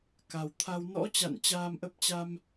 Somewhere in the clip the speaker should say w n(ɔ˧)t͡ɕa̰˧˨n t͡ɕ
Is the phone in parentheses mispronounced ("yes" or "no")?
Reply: yes